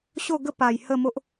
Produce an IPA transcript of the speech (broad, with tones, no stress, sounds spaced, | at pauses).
ɕ o˥˧ ɡ ə˦ p a˨˩ j h ə˥˧ m o˦ ʔ